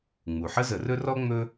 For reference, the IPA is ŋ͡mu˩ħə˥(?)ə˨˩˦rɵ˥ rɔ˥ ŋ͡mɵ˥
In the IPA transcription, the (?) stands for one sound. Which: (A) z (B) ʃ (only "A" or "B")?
A